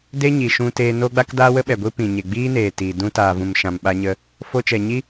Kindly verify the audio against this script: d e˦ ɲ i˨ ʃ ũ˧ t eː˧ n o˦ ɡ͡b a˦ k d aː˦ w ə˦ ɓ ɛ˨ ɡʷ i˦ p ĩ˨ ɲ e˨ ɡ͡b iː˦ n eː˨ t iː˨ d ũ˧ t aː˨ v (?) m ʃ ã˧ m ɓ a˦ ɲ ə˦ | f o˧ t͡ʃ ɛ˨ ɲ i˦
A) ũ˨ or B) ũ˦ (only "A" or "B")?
A